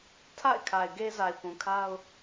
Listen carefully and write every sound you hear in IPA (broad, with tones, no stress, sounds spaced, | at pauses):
tʰ a̰˦˨ ɪ̯ kʰ a˨ ɪ̯ ɡ e˦ z a˨ ɪ̯ p ũ˨ kʰ a˦ ʊ̯